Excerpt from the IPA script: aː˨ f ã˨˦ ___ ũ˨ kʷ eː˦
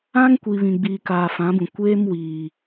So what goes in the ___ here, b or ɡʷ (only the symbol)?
b